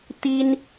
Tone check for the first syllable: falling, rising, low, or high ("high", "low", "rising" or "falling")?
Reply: high